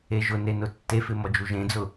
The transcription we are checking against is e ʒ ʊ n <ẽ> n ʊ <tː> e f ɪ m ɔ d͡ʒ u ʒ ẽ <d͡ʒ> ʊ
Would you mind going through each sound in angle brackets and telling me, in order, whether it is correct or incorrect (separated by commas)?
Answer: incorrect, correct, incorrect